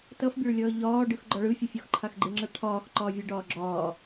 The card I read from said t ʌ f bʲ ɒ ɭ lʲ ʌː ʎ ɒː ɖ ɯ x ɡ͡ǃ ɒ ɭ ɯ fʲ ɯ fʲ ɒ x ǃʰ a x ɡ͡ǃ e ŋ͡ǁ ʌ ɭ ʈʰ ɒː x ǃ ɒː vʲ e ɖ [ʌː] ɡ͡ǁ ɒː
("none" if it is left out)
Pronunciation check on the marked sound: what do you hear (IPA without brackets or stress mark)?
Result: ɒː